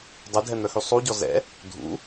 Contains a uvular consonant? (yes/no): no